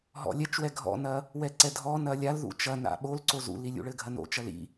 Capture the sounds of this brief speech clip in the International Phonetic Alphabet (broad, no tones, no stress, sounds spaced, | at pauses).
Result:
ɦ ɔ̰ lʲ ɛ t͡ʃ w ɛ ɡʱ ɔ̰ n ɐ | w ɛ ǀ ɛ dʱ ɔ n ɐ lʲ a l ð ṵ t͡ʃ ɐ n a̰ ɓ o l ǀ o z ṵ l i lʲ ṵ ɭ ɘ ɡʱ ɐ n o̰ t͡ʃ ɐ l ḭ